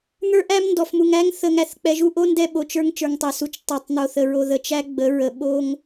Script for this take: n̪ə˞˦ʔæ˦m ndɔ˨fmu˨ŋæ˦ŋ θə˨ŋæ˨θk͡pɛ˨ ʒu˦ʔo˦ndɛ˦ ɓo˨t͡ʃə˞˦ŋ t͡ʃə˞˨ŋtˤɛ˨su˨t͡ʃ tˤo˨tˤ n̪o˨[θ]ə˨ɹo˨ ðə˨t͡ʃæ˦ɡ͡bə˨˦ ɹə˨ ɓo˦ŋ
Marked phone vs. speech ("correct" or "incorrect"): correct